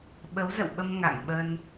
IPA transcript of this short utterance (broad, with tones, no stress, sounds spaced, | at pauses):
ɓ ə˨˦ w z ə̰˧˨ w ɓ ə˧ m ŋ a̰˧˨ ŋ ɓ ə˧ n